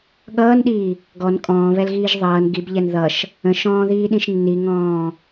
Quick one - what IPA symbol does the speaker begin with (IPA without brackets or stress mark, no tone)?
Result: ɠ